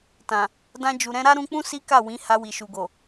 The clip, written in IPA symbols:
t ã˨ | d ã˧ d͡ʒ u˨ ɾ ɛ̃˧ ɾ a˦ ɾ ũ˧ k͡p ũ˦ s i˦ k a˦˨ w ĩ˨˦ h a˧ w i˨ ʃ u˨ ɡ o˨

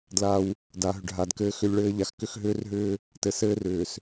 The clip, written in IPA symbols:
d l a˦ w | d a˨ ɦ ʏ˨ ɖ ɦ a˨ d k ɘː˦ x ʏ˦ lʲ ɭ ɘː˦ ʎ a˨ x k ʏ˦ x ɦ ʏː˦ r ɦ ʏː˦ | t ɘ˨˦ s ɘː˦ r ʏː˨ s

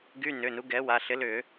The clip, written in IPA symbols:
ɡ y˧˥˧ n ʏ˩˧˩ n u˨˥ ɡ ɛ˨˥ w a˩˧˩ ɬ ɪ˨˥ l ʏ˧˩˧

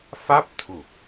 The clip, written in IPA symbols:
f a˥˩ p̚ tʰ u˨˩ k̚

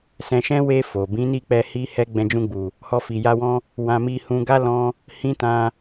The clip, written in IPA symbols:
s ɛ̃˧ ʃ ɛ̃˦ w e˧ f o˨ b ĩ˨˦ n i˦˨ k͡p ɛ˧ h i˦ h ɛ˦ ɡ͡b ɛ̃˧ d͡ʒ ũ˧ ɡ͡b u˨ | h ɔ˧ f i˨ j a˧ w ɔ̃˦ | w ã˧ m i˧ h ũ˧ ɡ a˦ l ɔ̃˧ | h ĩ˦ t ã˧

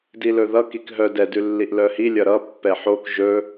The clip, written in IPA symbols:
d i l ɵ ð ʌ k i k ɦ œ d ɛ d ʉ lː i ʔ l œ h i lʲ ʌ ɾ ʌ pː ɛ ħ o k ʒ ɵ

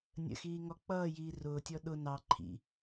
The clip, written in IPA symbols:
nʲ ə̰ x iː ŋ ɔ k͡p ʌː j iː r ʊː tʲ ɔ ɗ ʊ n ɑ ǃʰ ḭ

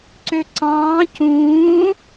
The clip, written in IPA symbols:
ǀ ø ǀ ɑ̃ː c ũː

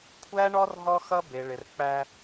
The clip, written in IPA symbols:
kʷʰ æ˦ ɳ ɔ˦ r ɦ ɔ˦ x ʌ˦ b e˨ ɭ ɪ˨ r k͡p æ˦

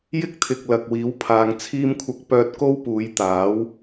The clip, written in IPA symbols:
j ɪ˥ k̚ t̪ʰ ɪ˨ k̚ l ɐ˨ k̚ w iː˨˥ w pʰ aː˨˧ ŋ t͡sʰ iː˥ m kʷʰ ɐ˧ k̚ p œː˧ t̚ k o˥ w p uː˨˧ j t̪ aː˨˥ w

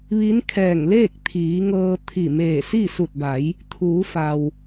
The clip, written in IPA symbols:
ʋ i˧˥ n kʰ ɛː˧˩ ŋ l eː˥˨ k̚ t̪ʰ iː˩˧ ŋ ɤː˧ t̪ʰ i˧˩ m eː˧˩ s i˥˨ s u˧˩ t̚ b a˩˧ j | t̪ʰ uː˩˧ f a˩ w

